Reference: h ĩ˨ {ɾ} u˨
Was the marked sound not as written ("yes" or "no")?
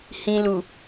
yes